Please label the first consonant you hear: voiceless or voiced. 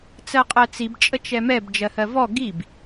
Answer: voiceless